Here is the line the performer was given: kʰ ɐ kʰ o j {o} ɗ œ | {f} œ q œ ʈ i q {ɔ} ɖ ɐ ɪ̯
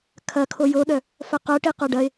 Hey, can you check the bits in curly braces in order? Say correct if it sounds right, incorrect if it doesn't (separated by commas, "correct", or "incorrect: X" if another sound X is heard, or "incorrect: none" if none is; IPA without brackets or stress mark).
correct, correct, incorrect: o